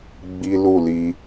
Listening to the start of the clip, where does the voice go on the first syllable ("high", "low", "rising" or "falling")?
high